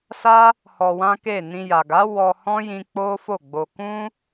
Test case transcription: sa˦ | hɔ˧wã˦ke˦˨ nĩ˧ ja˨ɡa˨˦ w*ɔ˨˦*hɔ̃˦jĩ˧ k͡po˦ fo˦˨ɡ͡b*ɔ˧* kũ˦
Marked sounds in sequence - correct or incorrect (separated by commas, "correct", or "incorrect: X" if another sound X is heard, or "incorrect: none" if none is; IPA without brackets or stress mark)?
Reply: incorrect: ɔ˧, incorrect: o˧